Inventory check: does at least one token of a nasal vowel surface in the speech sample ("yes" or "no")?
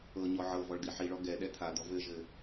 no